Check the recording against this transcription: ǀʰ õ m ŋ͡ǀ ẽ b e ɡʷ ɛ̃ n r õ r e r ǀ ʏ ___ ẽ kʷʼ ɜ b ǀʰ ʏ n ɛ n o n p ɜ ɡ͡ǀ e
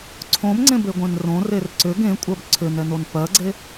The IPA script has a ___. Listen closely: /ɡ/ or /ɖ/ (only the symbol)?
ɡ